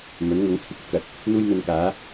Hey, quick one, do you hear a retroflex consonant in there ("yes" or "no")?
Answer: no